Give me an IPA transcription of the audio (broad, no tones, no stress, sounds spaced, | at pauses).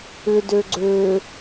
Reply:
ʏ d ø ɡ͡ǀ ø